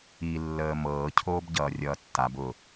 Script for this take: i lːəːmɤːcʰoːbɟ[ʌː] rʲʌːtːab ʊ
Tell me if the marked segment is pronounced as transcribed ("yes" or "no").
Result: yes